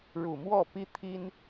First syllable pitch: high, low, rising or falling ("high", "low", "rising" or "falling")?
low